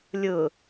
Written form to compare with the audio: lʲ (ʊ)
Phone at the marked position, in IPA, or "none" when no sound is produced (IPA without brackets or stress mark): ʊ